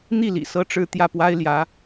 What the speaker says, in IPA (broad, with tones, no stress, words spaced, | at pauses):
n̪i˥˩ lḭ˨˩ sɤ˥ʈ͡ʂɻ̩˥˧ t̪jä˥˩pwa˥ɪ̯ ljä˧˥